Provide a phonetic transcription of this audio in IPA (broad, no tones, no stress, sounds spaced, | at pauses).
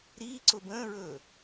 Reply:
ɾ iː ǀ ʊ b ə̃ː ɹ ɵː